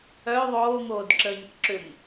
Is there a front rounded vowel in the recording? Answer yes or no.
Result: yes